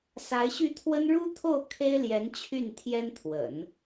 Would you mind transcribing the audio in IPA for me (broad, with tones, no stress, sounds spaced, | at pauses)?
s a˧˥ ɪ̯ ɕ y˥˩ t̪ʰ w ə˥ n ɻ u˥ t̪ʰ o˥˩ ʊ̯ kʰ e˥ ɪ̯ l j ɛ˧˥ n t͡ɕʰ y˥˩ n t̪ʰ j ɛ˥ n t̪ʰ w ə̰˨˩˦ n